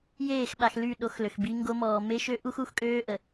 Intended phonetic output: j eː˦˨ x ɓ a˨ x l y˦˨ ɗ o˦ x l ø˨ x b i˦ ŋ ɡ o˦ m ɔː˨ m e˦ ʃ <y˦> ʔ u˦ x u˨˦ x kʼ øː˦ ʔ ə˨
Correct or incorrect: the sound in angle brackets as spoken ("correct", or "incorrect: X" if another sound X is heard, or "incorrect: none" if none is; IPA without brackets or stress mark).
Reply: incorrect: ø˦